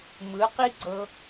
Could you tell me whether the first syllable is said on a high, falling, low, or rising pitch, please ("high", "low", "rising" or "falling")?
rising